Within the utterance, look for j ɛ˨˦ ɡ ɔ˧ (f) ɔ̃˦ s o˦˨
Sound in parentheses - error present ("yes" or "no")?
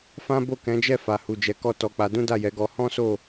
yes